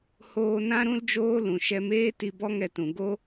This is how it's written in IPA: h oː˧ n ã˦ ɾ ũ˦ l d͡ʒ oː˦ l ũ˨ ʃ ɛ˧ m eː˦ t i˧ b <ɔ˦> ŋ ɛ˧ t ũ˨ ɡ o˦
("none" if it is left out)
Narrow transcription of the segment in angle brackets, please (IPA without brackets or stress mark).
ɔ˦